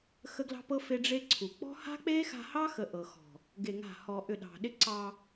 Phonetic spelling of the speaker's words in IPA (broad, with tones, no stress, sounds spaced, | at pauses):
x ə˦ ɡ l ɑ̤˦ p ɤ˦ f e˦ ɖ͡ʐ e˦ ǀʰ u˨ k͡p ɔ̤˦ h a̤˦ k͡p e˦ x a̤˧ h ɑ˦ x ə˧ ʔ ɤ˨ x ɔ̤˨ | ɡ e˧ ŋ a̤˦˨ h ɔ˧ ʔ ʏ˦˨ ɗ ɑ̤˨ ɗ ɪ˦ ǀ ɑ˧